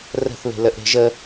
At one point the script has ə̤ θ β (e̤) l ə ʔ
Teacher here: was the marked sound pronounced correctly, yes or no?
yes